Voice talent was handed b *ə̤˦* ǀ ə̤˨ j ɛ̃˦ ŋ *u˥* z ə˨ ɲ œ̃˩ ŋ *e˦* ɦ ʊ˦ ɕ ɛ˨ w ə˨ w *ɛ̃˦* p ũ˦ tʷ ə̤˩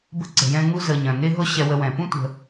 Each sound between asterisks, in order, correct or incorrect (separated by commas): incorrect, incorrect, correct, incorrect